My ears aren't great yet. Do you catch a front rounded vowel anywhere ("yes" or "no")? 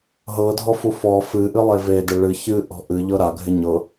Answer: no